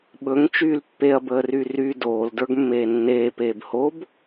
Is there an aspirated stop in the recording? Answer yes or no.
no